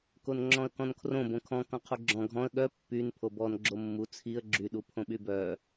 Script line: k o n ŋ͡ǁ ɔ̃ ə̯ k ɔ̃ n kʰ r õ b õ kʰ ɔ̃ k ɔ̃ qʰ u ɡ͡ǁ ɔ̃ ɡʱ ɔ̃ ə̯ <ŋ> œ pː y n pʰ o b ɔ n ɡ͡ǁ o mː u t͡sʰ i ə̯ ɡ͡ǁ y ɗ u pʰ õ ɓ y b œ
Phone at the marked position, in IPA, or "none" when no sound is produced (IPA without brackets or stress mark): ɠ